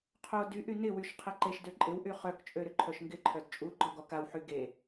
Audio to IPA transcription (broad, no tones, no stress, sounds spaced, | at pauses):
qʰ o d y ʔ y n ɪ w y ʃ qʰ ɛ ǃ e ʃ d ø ǃʼ ɪ w ʔ y χ œ k t͡ʃʼ ø ɾ ʏ ǃʰ œ ʃ ŋ ɡ ɪ ǃʰ œ d t͡ʃʼ u ɡ͡ǃ ɔ ɡ ɔ k a w ħ y ɡ e